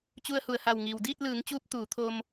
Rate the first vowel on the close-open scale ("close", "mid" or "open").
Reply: close